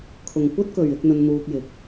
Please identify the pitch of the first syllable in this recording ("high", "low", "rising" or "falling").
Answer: low